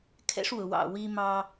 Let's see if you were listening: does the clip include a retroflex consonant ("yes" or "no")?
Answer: yes